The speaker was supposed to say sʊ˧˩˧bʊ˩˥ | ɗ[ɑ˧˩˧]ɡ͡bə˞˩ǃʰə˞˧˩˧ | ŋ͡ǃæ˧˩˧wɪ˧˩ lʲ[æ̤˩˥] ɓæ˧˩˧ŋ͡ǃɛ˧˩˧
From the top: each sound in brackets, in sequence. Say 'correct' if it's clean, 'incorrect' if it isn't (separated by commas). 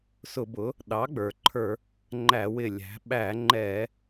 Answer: incorrect, correct